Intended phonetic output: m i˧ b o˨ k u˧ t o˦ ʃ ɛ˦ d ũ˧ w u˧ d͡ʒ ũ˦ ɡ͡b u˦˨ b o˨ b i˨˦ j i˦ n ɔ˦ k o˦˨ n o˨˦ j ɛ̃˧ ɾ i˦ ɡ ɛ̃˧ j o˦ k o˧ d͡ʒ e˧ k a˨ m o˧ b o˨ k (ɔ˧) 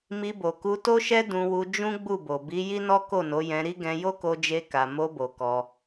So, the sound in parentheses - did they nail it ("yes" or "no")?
yes